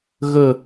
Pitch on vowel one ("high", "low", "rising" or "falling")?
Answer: falling